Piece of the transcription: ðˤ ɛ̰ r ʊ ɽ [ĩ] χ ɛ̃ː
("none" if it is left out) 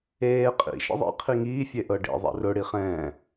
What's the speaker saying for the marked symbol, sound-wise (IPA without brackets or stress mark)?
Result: i